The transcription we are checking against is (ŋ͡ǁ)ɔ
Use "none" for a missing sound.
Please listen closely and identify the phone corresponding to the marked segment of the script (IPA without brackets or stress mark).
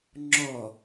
ŋ͡ǁ